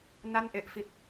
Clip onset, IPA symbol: n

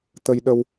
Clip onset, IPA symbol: t̪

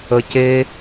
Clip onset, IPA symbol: ə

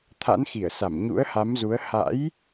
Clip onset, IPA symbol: t̪ʰ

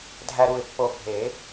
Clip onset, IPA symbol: dʱ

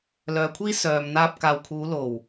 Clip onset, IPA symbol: l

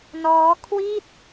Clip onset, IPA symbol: n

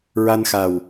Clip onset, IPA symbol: ɹ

